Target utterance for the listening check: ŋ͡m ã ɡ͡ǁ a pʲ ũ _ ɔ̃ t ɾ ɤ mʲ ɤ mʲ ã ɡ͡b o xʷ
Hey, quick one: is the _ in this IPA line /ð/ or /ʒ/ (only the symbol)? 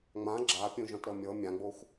ʒ